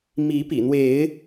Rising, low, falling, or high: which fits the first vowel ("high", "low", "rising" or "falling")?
rising